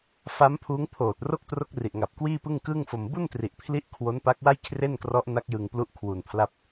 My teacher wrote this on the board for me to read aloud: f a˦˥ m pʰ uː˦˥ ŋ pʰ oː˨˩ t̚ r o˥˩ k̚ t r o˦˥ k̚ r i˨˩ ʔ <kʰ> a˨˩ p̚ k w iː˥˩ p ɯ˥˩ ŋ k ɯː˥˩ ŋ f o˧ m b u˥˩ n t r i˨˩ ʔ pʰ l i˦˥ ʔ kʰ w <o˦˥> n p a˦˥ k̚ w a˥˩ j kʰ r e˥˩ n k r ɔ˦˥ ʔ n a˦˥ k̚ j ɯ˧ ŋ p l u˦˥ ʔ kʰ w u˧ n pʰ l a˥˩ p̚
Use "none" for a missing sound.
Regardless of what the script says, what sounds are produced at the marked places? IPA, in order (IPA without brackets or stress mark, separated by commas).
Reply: ŋ, o˦˥